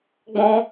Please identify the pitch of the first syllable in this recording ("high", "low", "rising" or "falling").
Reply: high